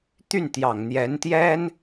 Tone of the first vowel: falling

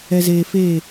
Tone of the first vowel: low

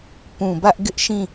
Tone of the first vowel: low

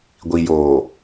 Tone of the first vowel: low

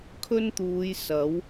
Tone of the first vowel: high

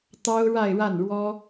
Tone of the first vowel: high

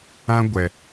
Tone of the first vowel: high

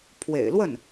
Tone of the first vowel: low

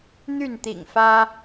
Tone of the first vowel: falling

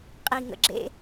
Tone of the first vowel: low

